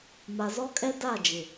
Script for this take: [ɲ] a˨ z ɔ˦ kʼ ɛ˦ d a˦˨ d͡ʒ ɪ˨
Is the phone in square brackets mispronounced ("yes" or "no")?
yes